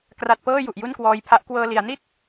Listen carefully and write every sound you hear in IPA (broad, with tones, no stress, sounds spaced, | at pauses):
k r a˨˩ t̚ p ɤː˥˩ j u˨˩ ʔ j u˥˩ n k w ɔː˧ j pʰ a˦˥ ʔ k w ɤː˧ l i˩˦ a̯ n i˥˩ t̚